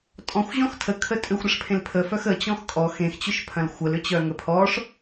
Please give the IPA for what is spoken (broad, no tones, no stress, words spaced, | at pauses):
tʼɔ̃xʷ ʑɔ̃xtʰə kʰətʼʏxʷ ɾəʂpʰẽlpʰəfœx ə t͡ɕɔ̃xkʼɔ xẽxt͡ɕʏʃpʰɐ̃l xʷəlʏt͡ɕœ ŋəpʰɔʂ